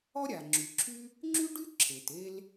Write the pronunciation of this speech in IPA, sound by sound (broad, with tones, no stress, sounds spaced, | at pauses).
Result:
ɔ˥ ɾʲ a˩ ŋ͡ǁ y˩ ǁʰ y˥ | ŋ͡ǁ y˥ ɖ y˥ ǁʰ e˩ t e˥ l